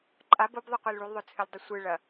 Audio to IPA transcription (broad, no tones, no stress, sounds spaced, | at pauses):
ǃʼ a b o b ðˤ ɨ qʷ e l ɭ u l ðˤ ɵ t͡sʰ ɨ lʲ dˤ ɵ sʷ ɨ ɭ ɐ